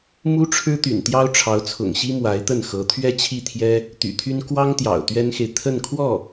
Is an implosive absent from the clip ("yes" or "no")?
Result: yes